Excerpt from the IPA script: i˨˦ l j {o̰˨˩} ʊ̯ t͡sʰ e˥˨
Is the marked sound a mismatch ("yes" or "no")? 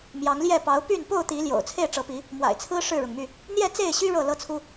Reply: no